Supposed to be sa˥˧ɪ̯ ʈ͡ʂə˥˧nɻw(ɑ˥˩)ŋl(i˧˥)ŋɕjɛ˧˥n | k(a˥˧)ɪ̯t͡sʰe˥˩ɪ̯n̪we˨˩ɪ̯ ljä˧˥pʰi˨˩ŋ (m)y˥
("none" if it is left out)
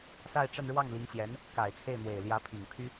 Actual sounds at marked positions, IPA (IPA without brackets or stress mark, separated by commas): ɑ˥˩, i˧˥, a˨˩, pʰ